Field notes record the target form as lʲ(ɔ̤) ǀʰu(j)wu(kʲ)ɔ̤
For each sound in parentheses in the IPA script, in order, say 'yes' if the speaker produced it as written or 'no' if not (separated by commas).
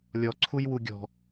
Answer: no, yes, no